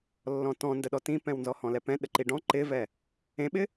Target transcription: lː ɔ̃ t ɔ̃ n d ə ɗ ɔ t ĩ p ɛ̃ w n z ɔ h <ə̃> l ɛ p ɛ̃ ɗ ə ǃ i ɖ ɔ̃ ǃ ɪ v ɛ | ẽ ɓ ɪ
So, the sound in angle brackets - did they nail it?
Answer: no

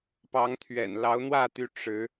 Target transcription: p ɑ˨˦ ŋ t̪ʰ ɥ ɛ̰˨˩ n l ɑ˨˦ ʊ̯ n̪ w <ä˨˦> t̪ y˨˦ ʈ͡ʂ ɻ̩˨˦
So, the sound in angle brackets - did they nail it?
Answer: no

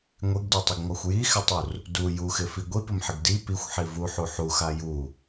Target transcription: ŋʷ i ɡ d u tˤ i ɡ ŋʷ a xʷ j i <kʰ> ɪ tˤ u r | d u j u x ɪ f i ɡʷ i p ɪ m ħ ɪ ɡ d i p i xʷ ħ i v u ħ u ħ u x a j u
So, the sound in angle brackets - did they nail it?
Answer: no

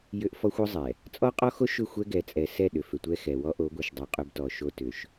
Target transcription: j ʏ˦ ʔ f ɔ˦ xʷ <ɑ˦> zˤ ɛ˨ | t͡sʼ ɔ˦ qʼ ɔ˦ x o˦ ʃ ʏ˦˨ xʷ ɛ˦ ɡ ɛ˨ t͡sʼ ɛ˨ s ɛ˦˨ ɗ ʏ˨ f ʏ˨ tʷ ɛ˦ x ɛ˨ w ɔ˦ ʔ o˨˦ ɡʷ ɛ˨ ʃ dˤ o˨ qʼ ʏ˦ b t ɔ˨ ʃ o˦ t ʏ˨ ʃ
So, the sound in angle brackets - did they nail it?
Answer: no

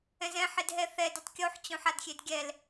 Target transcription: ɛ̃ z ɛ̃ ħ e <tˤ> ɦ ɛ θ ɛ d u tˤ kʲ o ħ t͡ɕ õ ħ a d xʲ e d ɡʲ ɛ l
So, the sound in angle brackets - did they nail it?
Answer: no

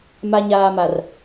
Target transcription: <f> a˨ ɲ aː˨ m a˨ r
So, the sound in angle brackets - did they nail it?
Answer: no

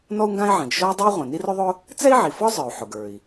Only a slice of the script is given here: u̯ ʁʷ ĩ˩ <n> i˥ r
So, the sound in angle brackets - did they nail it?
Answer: yes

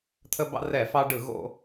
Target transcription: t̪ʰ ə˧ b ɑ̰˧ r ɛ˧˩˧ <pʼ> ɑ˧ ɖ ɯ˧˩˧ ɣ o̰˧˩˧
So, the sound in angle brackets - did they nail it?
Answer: no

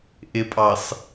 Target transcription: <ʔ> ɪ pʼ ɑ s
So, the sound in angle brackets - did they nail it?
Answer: yes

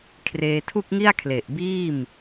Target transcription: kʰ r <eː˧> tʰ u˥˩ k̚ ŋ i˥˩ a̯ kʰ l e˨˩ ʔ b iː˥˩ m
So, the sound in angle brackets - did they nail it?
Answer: yes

